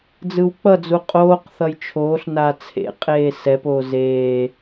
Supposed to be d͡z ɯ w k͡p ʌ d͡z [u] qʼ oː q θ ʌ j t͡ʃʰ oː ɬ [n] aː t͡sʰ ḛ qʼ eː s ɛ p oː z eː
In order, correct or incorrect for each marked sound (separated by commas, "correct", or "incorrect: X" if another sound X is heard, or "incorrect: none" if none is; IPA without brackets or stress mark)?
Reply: correct, correct